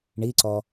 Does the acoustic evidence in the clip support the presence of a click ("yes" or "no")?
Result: yes